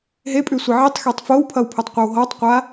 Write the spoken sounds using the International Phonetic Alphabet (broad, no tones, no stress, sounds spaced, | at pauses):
ɦ e pʼ ʉ sʷ ʌ ʕ i tˤ x e tˤ f o w pʰ ʌ w pʰ o tˤ qʷ ʌ w ɦ ɔ tˤ qʷ a